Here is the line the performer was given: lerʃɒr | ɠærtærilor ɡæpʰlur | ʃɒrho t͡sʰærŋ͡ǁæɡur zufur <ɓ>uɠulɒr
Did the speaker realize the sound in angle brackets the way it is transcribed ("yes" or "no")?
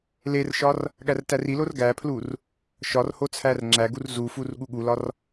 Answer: no